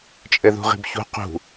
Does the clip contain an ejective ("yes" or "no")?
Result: yes